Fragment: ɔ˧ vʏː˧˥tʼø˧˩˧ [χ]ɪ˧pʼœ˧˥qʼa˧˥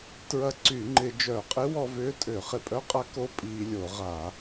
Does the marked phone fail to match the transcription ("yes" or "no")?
no